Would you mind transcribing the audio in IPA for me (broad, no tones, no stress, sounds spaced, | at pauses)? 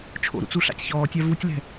t͡ʃʰ o̰ ɾ ṵ t͡s u ɬ a̰ tʲ ç ɔː tʲ a v u tʲ l ɛ̤